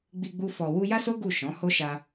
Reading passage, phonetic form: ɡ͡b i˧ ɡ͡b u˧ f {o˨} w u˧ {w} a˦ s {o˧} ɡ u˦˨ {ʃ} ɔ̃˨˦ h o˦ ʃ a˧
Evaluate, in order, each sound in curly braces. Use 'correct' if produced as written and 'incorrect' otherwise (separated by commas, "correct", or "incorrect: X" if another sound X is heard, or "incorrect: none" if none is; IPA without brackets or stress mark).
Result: incorrect: ɔ˨, incorrect: j, incorrect: o˦, correct